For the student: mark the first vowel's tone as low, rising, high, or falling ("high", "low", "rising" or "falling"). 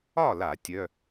falling